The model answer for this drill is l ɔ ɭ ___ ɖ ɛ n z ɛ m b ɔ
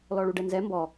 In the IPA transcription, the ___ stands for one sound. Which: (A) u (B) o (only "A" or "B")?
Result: A